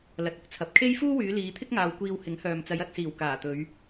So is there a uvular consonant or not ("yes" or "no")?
no